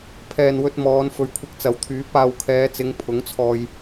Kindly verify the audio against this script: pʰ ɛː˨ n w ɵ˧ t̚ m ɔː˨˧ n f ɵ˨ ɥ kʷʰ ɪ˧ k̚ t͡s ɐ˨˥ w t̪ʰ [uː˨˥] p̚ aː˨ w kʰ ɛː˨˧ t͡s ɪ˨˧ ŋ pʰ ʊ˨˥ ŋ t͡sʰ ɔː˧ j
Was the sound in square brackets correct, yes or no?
no